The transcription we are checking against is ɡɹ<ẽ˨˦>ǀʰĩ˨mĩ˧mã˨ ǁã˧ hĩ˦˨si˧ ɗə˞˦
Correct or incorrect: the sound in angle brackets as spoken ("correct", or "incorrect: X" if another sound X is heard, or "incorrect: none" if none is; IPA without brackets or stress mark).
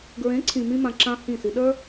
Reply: correct